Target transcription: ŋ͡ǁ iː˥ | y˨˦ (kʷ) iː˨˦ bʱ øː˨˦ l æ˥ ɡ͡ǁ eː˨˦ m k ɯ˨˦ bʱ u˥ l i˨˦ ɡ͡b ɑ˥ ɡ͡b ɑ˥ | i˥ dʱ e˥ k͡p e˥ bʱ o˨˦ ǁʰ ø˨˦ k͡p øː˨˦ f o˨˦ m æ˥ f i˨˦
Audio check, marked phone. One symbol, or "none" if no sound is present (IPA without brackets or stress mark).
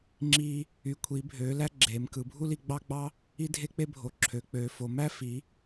kʷʰ